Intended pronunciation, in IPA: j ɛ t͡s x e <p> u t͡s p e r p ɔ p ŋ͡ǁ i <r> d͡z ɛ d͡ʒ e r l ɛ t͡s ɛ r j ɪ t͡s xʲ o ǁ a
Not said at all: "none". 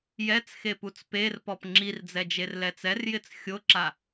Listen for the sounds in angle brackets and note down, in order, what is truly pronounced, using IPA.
p, r

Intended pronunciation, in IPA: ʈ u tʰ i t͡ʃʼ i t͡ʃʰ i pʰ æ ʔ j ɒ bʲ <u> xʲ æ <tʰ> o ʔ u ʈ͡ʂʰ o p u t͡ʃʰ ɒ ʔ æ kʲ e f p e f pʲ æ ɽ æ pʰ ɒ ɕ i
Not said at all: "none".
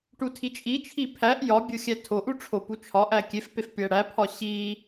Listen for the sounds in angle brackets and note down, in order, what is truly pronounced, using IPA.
o, tʰ

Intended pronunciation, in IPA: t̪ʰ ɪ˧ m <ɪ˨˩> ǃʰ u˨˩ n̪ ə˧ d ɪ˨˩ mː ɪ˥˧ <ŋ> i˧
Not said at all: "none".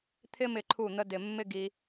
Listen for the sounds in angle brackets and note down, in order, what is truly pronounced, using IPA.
ɪ˨˩, ɡ

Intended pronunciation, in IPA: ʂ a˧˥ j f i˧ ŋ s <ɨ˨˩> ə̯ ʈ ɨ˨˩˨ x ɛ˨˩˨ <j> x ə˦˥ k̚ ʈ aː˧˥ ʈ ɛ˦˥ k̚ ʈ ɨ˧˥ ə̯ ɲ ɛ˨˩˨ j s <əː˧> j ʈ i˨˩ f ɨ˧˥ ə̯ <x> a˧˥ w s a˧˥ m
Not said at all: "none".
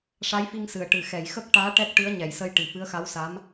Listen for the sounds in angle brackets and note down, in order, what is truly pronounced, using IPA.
ɨ˨˩, j, ə˧, x

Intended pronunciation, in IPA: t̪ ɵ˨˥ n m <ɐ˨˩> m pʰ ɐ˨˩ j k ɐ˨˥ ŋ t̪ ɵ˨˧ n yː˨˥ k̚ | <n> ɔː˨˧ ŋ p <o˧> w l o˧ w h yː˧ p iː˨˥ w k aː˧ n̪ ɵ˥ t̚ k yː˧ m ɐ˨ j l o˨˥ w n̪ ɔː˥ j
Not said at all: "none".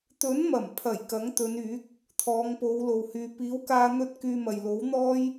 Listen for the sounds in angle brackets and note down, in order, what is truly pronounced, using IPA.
ɐ˨˩, t̪ʰ, o˨˧

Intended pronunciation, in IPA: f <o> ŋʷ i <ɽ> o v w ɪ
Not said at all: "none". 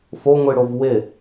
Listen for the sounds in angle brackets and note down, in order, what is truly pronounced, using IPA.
o, ɽ

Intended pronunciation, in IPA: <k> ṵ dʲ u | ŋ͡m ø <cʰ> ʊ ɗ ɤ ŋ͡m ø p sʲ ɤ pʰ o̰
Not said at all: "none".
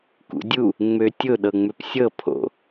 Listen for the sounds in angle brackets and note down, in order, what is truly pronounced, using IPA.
k, tʲ

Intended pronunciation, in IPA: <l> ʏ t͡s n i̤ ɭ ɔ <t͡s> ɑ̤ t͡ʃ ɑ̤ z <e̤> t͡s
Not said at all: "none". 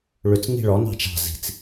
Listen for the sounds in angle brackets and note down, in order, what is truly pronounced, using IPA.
ɭ, n, i̤

